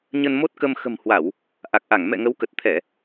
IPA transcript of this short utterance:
ɲ ə˧ n m o˦˥ t̚ k ə˧ m x ə̤˨˩ m h w a˧˩˨ w | ʔ a˨˩ k̚ ʔ a˧˩ ŋ m ɛ̰˧˨ ŋ ə˨˦ w k ə˨˩ t̚ t̪ʰ ɛ˧˩˨

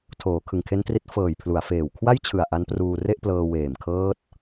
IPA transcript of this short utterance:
tʰ oː˩˦ kʰ ɯ˨˩ ŋ kʰ e˦˥ n t r i˦˥ t̚ f ɤː˨˩ j pʰ l u˩˦ a̯ f eː˨˩ w kʰ w a˥˩ j t͡ɕʰ ɯ˨˩ a̯ ʔ a˦˥ n p r uː˧ r e˥˩ ʔ p l ɤː˧ w eː˨˩ m kʰ ɤː˦˥ t̚

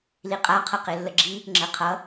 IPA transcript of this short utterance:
l i qʼ a qʰ ʌ q e lː ə ɡ͡ǁ i | ŋ͡ǁ ə qʰ ʌ

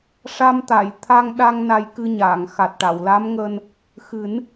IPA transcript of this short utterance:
ʂ a˧ m t̪ a˨˩˨ j t̪ʰ a˧ ŋ ɗ a˧ ŋ n a˧ j k ɨ˧ ɲ aː˨˩˨ ŋ x a˨˩ t̚ ʈ a˨˩˨ w l a˧˥ m ŋ əː˧ n | x ɨ˨˩˦ n

